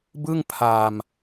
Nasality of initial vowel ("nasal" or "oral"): oral